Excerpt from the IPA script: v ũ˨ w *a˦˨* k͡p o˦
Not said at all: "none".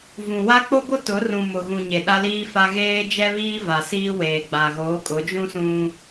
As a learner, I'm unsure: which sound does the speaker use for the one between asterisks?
a˦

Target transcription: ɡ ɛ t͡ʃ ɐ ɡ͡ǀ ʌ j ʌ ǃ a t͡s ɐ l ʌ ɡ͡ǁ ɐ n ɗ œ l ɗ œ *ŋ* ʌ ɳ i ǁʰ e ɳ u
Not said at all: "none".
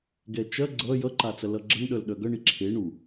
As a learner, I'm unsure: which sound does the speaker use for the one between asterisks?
ɡ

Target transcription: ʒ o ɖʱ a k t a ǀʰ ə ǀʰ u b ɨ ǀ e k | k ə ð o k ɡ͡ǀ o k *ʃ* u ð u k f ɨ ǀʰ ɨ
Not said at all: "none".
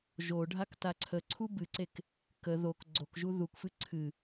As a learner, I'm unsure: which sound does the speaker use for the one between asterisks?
ʒ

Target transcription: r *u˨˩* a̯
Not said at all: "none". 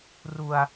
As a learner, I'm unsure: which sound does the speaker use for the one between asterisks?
u˧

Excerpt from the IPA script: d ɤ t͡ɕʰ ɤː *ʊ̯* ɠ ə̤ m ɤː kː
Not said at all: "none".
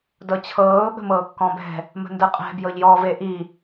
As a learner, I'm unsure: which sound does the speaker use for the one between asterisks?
ʊ̯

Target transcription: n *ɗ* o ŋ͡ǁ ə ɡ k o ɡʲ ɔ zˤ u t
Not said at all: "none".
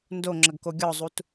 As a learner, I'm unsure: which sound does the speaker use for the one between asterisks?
d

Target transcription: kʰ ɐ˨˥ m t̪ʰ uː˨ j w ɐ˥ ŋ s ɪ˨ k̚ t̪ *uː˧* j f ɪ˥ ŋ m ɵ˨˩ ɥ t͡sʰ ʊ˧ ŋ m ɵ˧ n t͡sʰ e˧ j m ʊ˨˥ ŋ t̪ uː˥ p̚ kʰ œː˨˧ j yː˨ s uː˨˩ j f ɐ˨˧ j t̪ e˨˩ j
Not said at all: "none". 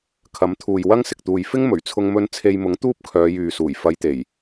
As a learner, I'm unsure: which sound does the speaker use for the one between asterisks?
uː˨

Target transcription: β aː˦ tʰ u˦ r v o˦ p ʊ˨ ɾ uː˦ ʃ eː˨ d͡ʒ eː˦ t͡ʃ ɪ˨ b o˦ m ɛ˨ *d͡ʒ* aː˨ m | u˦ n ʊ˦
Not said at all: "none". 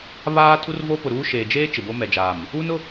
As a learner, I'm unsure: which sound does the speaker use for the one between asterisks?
d͡ʒ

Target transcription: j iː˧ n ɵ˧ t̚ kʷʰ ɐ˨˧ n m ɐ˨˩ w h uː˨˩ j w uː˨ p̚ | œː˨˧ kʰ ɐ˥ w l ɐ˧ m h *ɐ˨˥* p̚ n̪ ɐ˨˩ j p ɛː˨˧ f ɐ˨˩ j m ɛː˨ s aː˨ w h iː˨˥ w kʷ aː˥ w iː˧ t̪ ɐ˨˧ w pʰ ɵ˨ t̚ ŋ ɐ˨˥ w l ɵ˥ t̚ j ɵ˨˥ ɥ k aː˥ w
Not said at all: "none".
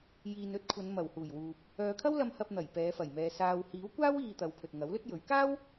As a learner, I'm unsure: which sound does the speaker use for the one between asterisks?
ɐ˧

